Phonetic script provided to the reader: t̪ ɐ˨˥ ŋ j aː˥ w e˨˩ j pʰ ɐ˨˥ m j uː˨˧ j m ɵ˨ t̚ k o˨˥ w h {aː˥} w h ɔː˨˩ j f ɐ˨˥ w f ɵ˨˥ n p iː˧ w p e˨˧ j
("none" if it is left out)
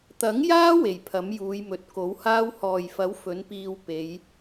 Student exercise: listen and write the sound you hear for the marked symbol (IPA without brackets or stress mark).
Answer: aː˥